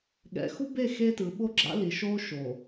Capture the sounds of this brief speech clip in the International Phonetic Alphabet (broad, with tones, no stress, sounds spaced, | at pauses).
ɠ ɛ̰˨ x u˦ b e˦˨ x e˦ t ɯ˨ ɓ o˦ ɡ͡ǁ a̰˦ l i˨ ʃ o˦ ʃ o˨